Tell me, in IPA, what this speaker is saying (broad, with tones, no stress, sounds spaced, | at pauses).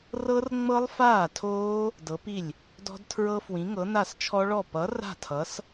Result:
r ɤ˦˥ r ŋ͡m ɤ˦˥ lˠ f aː˥˩ tʰ oː˦˥ | d ɤ˨˥ p i˥˩ lʲ | d ɔ̤˦˥ d tʰ ɹ ɤ˦˥ f w ĩ˨˥ ŋ ɤ˨˥ n a˥˩ s t͡ʃʰ ɔ˦˥ ɭ ɔ˥˩ p ʌ˨˥ r a̤˥˩ tʰ ʌ˨˥ s